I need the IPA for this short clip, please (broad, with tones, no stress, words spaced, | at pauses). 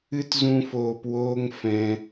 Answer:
ɨ˦tzũ˧foː˨p woː˦ŋfɛ̃˧